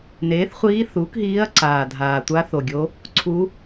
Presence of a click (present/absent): present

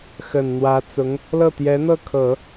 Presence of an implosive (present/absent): absent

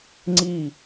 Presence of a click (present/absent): present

